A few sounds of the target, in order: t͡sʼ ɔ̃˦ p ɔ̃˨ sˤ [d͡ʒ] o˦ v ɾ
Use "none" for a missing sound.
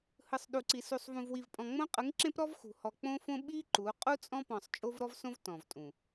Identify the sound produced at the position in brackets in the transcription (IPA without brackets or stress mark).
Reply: t͡ʃʼ